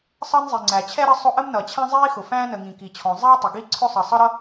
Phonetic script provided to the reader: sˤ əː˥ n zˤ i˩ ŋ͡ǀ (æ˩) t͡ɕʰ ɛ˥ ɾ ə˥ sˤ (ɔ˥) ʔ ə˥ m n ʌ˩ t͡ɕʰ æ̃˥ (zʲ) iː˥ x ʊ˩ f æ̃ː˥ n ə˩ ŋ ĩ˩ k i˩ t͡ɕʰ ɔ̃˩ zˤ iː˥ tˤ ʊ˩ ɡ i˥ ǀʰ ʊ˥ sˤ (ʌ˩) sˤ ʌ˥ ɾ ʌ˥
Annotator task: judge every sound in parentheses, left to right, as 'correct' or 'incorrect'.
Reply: correct, incorrect, incorrect, correct

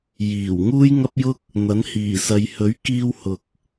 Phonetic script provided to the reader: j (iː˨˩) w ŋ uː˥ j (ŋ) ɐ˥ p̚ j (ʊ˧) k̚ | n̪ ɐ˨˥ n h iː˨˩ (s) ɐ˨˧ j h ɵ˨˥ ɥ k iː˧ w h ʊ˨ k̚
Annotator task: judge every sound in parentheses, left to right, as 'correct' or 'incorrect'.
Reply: correct, correct, incorrect, correct

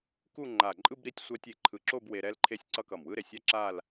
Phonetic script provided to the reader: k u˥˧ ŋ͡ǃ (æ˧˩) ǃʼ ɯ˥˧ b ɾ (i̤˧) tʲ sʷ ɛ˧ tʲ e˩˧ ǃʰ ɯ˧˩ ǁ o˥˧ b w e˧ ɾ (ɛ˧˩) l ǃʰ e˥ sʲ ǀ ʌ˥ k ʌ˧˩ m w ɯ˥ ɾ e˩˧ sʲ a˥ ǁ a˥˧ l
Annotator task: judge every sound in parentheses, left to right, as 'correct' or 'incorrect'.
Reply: incorrect, incorrect, incorrect

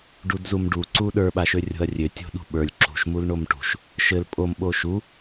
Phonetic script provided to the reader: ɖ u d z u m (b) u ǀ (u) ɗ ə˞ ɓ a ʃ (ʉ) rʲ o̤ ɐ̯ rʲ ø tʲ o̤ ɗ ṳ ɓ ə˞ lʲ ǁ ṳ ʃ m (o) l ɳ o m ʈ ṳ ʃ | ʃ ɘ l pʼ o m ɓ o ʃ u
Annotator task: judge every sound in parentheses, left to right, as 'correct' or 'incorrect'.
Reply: incorrect, correct, incorrect, incorrect

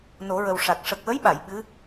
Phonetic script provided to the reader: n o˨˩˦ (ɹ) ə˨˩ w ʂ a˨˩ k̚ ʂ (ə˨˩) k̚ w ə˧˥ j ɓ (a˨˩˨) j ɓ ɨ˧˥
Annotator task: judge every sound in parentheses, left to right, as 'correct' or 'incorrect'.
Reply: correct, correct, correct

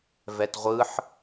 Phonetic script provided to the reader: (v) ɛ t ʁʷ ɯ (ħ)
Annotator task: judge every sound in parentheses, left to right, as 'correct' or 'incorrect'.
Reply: correct, correct

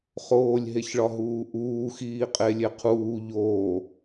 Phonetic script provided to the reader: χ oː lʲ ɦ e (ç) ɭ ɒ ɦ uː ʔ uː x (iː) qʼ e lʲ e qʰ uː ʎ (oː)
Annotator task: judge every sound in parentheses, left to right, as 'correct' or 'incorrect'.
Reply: correct, correct, correct

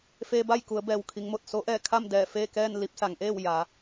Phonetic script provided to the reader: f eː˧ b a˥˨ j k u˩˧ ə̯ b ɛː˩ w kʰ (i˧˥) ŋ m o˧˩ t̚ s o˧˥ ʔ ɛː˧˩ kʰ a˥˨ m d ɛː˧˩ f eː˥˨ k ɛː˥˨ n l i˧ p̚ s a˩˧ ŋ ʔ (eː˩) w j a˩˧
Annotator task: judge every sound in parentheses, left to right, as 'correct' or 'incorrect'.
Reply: incorrect, incorrect

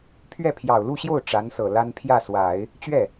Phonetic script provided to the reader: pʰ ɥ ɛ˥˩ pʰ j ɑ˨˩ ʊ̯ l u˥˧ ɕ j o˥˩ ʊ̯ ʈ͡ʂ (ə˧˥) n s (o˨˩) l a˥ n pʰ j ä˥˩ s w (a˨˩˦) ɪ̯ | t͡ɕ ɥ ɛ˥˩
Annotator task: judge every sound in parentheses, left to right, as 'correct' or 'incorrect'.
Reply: incorrect, incorrect, correct

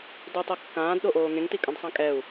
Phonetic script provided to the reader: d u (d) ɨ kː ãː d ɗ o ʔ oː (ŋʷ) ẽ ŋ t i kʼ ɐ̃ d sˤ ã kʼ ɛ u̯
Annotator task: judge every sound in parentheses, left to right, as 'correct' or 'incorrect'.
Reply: incorrect, incorrect

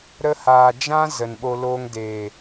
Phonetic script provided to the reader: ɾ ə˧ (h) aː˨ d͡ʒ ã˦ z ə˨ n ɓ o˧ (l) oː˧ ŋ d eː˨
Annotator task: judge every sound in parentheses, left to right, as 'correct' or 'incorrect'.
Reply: correct, correct

